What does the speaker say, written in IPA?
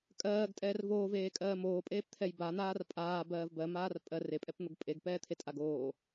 kʼɜːɡtʼɛːr voːveːkʼɜː moːpʼeːpt̪ʰɛj ban̪aːr pʼaːbɜːv bɜmaːr pʼɜr epʼɛpn̪oɡ pʼeɡpɛːt̪ʰetʼaɡ oː

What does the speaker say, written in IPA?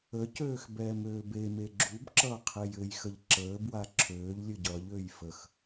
əcøːx bɛːmøːbeme ɡ͡ǁubǁʌːqʰej ɘjxəʎ ǁəː bwaǁʰøːʎ lʲɘɟʌʎøːj fəx

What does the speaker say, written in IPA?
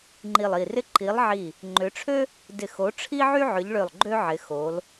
ŋ͡ǃi˧˩lˠi˧˩rɪ˥ ǃi˨˦lˠʕi˧˩ | ŋ͡ǃʏ˨˦ʈ͡ʂʰø˥ | dɪ˧˩xo˨˦ ʈ͡ʂʰi˥ʕy˥ ʕʏ˨˦ʎɭø˧˩lˠ ɡ͡ǃø˥ʕɪ˨˦ xo˨˦l

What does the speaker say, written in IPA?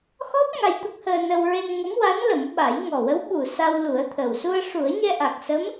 xɔ˦˥p̚ ŋa˧jt̪ə˦˥k̚həː˧nə˧w ɹe˧n ŋə˧˥mwa˧˥n lə˨˩˦mɓa˨˩˦jŋɔ˨˩ wə˧˥wɓu˨˩ sa˧wlu˨˩˦ə̯t̪ʰəː˨˩w su˧ə̯ʂu˨˩˦ə̯ɲɛ˧ ʔa˨˩k̚sə˧˥m

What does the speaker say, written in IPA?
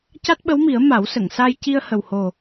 ca˦˥t̚ɓə˧˥wmi˨˩˦ə̯ ma˨˩˦wsə˨˩˨ŋsa˧j ci˧ə̯hə˨˩who˨˩

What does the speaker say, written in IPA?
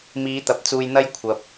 miː˨˥t̪ɐ˨p̚t͡suː˧jn̪ɐ˥j kʷʰɐ˨p̚

